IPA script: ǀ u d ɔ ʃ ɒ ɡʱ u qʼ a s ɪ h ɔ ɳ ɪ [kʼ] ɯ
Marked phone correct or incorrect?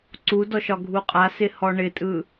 incorrect